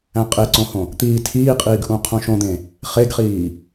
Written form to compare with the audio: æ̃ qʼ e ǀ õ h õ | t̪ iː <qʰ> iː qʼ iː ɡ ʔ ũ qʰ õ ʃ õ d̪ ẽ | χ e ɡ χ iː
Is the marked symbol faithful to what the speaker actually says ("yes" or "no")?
no